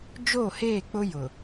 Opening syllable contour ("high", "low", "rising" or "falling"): falling